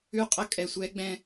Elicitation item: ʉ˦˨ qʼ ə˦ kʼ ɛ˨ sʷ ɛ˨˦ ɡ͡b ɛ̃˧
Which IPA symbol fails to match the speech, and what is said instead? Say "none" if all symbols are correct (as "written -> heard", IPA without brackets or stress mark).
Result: none